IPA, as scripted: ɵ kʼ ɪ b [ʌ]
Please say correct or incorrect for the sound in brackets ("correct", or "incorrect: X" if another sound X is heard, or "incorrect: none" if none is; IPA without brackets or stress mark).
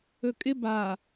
incorrect: a